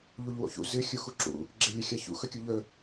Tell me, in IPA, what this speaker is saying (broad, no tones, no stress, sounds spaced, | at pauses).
ʎ u ʎ w o̰ ç ṵ z ɨ xʲ u x u ǁ ṵ | ɡ͡ǁ e lʲ ɵ xʲ a ç ṵ x ɵ kʲ u ʎ ɵ